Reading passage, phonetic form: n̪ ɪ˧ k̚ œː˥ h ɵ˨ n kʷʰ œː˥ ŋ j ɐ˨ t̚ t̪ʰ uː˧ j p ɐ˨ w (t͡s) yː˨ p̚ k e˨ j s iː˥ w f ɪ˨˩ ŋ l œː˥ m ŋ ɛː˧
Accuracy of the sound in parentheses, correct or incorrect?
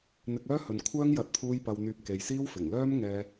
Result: incorrect